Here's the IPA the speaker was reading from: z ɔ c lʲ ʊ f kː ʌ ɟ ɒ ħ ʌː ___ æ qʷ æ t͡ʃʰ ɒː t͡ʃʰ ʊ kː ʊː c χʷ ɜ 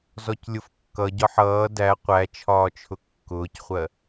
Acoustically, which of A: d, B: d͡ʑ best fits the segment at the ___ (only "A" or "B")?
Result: A